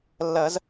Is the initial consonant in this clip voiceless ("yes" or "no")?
no